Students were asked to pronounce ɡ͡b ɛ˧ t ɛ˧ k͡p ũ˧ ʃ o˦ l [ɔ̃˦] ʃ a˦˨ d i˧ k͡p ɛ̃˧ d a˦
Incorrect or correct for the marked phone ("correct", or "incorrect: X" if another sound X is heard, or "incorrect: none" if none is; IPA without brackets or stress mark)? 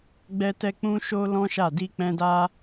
correct